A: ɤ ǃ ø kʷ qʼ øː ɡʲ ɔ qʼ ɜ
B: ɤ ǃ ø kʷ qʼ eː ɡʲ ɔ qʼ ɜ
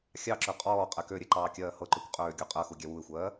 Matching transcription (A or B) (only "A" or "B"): A